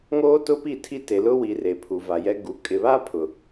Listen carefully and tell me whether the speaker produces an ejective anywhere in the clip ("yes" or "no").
yes